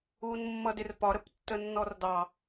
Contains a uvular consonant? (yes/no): no